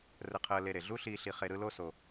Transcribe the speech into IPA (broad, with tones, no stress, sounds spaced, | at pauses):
r ə˧ qʰ əː˧ l e˧ ɾ e˩ ɮ u˥ ɬ iː˧ ɬ i˧ χ e˧ ɾ ɯ˥ l o˥ s o˧